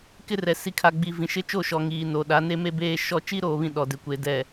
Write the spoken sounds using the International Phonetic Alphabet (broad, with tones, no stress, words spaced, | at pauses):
kɪ˦rɛ˨ si˨kʰa˨ ɡ͡bi˨ vĩ˨ʃɪ˦t͡ʃo˦˨ʃɔ˨ ŋiː˨no˨ ɗa˨˦ne˦me˦beː˦ ʃɔ˦ t͡ʃi˦ɾoː˨βĩ˨ ɗɔ˨dɪ˨kʷe˨ dɛ˨